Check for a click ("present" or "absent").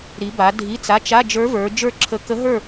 present